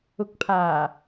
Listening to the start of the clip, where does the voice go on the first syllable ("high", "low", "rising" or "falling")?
rising